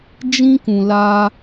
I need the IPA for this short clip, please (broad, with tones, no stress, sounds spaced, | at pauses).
d͡ʒ ĩ˦ k ũ˧ l a˦